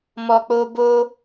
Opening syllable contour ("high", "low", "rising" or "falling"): low